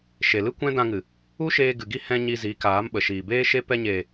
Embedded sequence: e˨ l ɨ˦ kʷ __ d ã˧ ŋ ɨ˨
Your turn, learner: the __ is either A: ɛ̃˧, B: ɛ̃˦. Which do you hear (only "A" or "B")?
B